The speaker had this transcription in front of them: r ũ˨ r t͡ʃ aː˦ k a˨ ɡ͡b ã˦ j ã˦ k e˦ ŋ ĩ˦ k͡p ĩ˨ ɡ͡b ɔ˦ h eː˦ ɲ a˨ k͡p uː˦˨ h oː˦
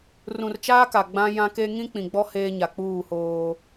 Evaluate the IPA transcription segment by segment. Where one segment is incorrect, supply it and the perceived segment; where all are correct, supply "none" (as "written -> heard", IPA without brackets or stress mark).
none